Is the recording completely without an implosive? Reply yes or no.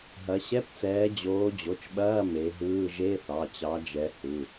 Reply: no